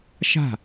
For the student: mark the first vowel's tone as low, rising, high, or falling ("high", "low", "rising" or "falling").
falling